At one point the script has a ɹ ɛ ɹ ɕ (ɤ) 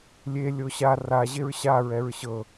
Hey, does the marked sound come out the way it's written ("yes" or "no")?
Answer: yes